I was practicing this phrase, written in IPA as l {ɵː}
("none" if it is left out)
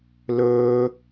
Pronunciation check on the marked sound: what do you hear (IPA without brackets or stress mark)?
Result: ɵː